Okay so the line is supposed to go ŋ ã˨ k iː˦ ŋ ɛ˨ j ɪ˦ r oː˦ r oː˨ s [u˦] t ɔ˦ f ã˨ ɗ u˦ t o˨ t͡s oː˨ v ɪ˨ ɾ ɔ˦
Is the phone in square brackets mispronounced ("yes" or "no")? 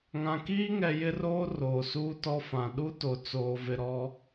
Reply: yes